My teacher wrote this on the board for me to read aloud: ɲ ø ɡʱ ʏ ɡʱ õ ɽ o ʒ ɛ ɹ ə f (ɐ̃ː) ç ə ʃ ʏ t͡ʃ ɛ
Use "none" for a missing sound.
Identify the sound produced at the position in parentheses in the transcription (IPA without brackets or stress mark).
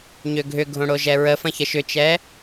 ɐ̃